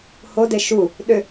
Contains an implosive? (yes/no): yes